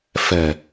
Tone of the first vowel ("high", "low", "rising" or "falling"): low